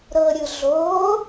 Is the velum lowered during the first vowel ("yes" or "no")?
no